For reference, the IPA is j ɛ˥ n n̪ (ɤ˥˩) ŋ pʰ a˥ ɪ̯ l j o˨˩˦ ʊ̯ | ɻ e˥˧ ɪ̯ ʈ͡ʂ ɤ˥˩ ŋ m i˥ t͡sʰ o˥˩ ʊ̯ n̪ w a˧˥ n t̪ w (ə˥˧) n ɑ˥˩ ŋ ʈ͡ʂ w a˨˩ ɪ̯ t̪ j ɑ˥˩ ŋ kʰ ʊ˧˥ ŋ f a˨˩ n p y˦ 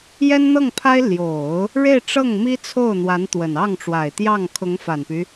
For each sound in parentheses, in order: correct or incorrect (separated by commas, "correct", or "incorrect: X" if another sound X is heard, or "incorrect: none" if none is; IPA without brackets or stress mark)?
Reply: correct, incorrect: ə˨˩